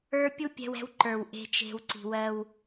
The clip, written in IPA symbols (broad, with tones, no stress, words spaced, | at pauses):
ə˞˦ pʲu˦pʲɛ̤˧wɛ̤˧w ǃə˞˨wʔe̤˧t͡ʃe̤˧w ǀi̤˨ wɜ˧w